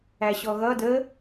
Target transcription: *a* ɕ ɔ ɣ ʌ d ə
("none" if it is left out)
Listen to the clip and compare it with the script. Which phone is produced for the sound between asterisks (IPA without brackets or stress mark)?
æ